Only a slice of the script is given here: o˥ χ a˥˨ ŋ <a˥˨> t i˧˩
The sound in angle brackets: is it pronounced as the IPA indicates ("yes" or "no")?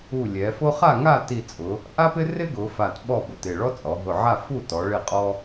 yes